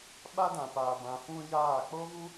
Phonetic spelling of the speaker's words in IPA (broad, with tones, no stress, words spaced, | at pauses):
ɓa˦dã˨ paː˨bã˨ fũ˦jaː˦˨ k͡po˦vu˦